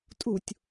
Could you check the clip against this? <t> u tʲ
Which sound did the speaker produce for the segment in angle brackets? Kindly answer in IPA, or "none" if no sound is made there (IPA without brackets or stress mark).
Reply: tʼ